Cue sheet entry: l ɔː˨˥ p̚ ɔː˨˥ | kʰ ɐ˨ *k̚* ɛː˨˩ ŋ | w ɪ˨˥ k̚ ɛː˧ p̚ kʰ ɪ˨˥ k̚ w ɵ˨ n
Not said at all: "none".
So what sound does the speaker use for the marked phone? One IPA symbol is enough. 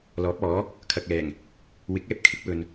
k̚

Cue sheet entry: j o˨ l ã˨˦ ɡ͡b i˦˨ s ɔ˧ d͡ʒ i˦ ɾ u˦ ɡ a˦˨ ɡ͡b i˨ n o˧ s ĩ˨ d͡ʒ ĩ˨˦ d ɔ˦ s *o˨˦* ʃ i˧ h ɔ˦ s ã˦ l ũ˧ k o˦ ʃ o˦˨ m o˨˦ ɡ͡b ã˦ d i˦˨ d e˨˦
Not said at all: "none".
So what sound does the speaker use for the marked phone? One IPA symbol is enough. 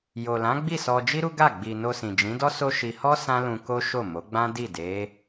o˦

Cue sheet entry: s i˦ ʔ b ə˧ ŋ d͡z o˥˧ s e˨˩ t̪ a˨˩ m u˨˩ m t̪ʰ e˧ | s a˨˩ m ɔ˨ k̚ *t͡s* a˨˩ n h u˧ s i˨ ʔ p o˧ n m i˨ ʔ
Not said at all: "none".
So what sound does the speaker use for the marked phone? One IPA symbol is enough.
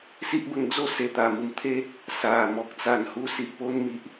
t͡s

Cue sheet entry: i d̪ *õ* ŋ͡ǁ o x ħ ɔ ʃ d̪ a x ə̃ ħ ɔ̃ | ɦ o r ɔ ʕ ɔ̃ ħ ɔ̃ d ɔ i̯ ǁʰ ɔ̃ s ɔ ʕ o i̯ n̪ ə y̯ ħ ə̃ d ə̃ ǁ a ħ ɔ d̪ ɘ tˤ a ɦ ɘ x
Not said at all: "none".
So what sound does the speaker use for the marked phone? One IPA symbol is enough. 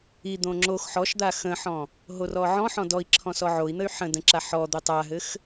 õ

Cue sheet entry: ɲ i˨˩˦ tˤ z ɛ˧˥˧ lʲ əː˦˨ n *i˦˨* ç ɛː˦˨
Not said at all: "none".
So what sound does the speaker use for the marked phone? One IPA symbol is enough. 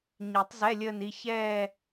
i˦˨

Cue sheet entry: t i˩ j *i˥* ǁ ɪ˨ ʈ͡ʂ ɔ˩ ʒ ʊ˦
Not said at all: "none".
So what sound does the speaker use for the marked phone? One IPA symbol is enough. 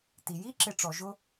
i˥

